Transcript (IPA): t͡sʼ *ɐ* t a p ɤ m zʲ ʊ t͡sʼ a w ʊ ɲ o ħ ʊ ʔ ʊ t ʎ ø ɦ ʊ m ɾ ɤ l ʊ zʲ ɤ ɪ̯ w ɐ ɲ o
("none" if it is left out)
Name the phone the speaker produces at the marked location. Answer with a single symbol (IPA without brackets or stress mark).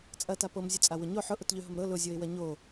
ɐ